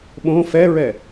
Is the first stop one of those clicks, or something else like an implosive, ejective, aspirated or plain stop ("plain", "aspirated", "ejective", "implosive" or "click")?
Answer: implosive